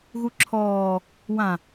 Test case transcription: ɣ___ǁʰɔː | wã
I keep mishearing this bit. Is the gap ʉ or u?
u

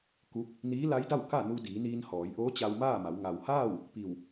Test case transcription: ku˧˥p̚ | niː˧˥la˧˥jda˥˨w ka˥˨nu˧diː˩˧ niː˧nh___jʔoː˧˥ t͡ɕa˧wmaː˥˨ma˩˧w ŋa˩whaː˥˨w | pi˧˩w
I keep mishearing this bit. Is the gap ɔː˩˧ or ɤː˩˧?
ɔː˩˧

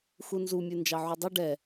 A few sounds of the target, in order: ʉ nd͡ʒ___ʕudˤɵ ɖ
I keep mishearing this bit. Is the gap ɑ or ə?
ɑ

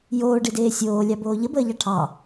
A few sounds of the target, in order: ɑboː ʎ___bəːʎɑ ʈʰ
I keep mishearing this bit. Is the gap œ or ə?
ə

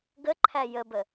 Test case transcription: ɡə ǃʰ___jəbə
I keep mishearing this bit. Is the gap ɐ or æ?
æ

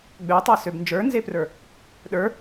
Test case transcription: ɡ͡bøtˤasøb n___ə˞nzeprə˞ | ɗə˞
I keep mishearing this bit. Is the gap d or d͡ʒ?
d͡ʒ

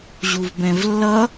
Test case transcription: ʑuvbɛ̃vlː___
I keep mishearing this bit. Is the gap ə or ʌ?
ʌ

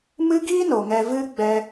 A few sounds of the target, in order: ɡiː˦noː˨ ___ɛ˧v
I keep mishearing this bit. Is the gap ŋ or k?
ŋ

